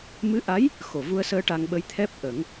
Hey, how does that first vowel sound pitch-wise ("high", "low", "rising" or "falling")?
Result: rising